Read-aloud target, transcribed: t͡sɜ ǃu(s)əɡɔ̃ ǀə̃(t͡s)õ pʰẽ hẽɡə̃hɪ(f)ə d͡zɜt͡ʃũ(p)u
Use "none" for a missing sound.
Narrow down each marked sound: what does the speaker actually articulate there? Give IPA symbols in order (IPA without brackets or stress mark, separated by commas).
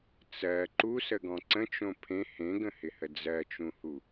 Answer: s, t͡ʃ, h, h